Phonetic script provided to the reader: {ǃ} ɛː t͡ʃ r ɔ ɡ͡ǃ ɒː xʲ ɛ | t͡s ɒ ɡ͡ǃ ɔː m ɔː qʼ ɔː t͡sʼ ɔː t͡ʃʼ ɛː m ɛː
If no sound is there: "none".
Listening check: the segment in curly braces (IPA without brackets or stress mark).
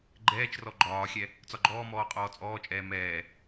ɡ͡ǃ